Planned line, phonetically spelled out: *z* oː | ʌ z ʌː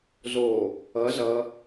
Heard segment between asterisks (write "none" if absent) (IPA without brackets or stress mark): z